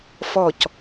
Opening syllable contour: falling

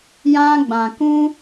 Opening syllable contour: high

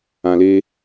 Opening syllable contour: low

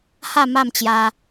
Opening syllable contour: falling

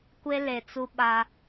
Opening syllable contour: high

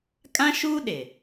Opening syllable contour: high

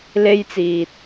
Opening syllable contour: high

